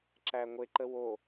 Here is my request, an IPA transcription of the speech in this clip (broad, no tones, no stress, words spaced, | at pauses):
ǁæŋʷeǃə wo